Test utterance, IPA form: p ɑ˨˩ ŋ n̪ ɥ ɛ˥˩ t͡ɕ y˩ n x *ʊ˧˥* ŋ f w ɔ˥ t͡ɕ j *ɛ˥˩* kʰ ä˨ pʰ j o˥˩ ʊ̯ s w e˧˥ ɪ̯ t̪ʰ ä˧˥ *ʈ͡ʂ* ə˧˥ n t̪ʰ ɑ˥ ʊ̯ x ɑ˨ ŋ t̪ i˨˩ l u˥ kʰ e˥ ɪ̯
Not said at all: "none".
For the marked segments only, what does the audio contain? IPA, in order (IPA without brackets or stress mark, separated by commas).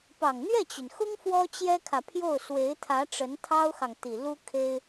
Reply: ʊ˥, ɛ˥, ʈ͡ʂ